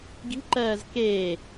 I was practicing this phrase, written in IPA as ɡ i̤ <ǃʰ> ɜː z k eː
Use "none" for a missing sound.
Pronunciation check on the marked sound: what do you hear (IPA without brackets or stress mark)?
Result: ǃ